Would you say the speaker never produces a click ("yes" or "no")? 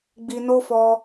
yes